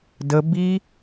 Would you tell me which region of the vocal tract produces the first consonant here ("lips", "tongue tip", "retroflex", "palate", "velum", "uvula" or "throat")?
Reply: tongue tip